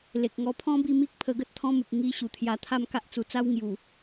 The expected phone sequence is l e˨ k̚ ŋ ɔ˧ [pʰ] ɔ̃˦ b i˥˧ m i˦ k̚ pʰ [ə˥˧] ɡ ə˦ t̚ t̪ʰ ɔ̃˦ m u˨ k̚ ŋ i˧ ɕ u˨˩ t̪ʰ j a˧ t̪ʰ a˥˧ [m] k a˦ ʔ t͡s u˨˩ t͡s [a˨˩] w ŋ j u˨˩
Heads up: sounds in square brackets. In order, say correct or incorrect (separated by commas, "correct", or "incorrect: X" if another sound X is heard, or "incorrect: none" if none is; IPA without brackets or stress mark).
correct, incorrect: ə˧, correct, incorrect: a˦